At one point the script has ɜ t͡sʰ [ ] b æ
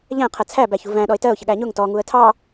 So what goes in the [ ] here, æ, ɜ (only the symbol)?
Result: æ